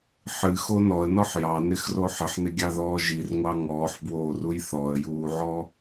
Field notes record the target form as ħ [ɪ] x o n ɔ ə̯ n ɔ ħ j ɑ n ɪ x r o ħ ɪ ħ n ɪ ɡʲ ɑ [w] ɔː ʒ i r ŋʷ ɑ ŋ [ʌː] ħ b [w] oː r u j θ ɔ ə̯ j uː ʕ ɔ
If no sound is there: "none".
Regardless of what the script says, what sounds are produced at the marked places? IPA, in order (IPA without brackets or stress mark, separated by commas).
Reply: ɨ, ð, ɔː, w